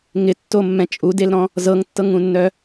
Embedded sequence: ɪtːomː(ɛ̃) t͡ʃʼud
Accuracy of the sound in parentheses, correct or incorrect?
correct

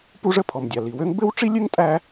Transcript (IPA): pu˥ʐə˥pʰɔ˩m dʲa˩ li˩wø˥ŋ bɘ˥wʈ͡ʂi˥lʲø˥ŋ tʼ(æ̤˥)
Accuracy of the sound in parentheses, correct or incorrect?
incorrect: æ˥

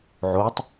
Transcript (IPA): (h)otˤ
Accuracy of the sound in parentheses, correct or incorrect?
incorrect: ʕ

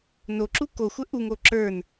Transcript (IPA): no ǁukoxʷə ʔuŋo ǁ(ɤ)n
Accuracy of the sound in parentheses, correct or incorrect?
incorrect: ə˞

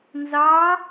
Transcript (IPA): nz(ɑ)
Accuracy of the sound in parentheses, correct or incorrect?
correct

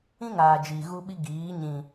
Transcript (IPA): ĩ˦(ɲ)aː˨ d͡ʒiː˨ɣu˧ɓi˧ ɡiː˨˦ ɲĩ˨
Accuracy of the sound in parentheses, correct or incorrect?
incorrect: ŋ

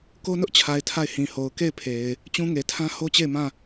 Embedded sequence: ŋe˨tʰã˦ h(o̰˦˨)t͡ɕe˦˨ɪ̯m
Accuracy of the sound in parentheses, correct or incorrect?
incorrect: o˦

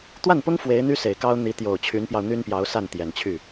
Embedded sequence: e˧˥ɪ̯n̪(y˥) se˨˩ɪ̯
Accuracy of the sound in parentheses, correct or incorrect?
correct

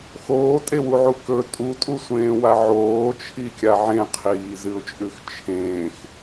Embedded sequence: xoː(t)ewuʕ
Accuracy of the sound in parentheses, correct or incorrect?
incorrect: tʼ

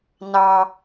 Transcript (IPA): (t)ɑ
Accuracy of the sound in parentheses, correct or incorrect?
incorrect: n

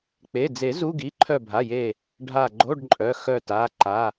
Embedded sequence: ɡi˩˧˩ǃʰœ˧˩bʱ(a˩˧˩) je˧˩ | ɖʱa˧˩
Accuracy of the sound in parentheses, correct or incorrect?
correct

